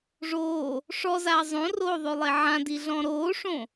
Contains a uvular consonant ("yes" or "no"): no